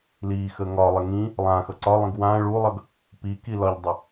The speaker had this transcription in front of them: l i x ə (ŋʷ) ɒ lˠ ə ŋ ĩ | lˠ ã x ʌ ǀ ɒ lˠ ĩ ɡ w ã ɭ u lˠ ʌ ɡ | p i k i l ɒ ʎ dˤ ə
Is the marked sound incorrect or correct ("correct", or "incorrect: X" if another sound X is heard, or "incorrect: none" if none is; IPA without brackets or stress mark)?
incorrect: ŋ